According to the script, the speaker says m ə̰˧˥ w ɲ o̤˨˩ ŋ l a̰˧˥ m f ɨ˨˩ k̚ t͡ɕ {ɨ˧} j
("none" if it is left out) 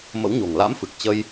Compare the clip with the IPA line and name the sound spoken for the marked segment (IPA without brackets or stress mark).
ə˧